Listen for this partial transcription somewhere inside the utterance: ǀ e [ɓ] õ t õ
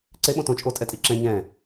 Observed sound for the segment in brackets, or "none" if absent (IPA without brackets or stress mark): ɓ